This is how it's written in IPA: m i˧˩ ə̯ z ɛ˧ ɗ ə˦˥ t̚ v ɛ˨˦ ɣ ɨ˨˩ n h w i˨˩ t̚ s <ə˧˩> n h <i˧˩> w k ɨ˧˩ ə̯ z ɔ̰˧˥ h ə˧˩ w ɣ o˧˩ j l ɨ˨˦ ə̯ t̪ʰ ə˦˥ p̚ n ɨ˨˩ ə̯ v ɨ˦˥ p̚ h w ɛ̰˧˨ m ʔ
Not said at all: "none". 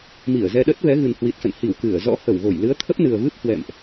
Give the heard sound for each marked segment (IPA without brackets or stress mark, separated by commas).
ə̰˧˨, i˧˩